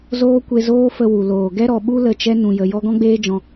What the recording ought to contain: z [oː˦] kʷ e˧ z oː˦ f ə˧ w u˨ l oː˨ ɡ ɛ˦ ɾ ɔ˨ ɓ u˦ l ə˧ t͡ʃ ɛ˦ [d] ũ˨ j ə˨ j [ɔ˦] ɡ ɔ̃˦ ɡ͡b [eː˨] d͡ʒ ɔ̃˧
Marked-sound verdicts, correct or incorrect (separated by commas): correct, incorrect, correct, incorrect